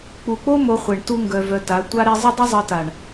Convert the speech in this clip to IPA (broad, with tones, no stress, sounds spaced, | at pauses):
k͡p u˨ k͡p o˦ m o˧ χʷ e˨ ɳ t u˦ ŋ ɡ œ˧ v œ˧ t a˨˦ tʷ a˦ ɾ e˦ zˤ ɘ˦ dˤ ɘ˦ zˤ ɤ˧ t a˨ ɳ